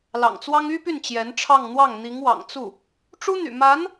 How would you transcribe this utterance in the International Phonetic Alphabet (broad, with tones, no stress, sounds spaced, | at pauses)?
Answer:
l ɑ̰˨˩ ŋ t͡s w ɑ˥ ŋ y˥ p y˥˩ n t͡ɕ j ɛ˧˥ n ʈ͡ʂʰ ɑ˥˧ ŋ n̪ w ɑ˥˩ ŋ n̪ i˧˥ ŋ w ɑ̰˨˩ ŋ t͡s u˥˩ | ʈ͡ʂ u˥ n̪ y̰˨˩ m a˧˥ n